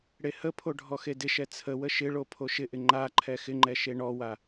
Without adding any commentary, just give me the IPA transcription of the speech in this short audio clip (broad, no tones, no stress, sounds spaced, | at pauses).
ɽ e h ə pʰ o ɖʱ ɔ x e d ɪ ʃ ɛ t͡sʰ ə w ə ʃ ɪ ɭ o pʰ o ʃ ɪ ʔ ɪ ŋ͡ǃ a ǃʰ ɛ x ɪ ŋ͡ǃ ɛ ʃ e ɳ ɔ w a